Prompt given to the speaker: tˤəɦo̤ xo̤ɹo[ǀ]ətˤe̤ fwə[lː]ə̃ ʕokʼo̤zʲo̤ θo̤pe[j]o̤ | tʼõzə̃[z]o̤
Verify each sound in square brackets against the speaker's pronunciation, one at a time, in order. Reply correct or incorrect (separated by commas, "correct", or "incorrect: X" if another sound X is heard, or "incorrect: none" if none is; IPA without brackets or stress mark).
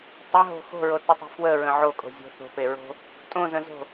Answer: incorrect: t, incorrect: ɹ, incorrect: ɹ, correct